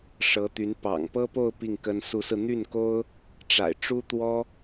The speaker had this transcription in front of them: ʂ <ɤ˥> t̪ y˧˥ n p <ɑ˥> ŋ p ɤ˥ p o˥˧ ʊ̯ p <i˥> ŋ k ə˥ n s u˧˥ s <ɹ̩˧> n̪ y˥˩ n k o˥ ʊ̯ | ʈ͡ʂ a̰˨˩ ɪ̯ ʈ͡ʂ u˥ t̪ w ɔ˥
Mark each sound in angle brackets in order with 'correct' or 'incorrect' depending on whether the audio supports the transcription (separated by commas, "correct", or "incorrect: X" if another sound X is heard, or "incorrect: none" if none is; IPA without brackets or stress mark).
incorrect: ɤ˧˥, incorrect: ɑ̰˨˩, incorrect: i˥˩, correct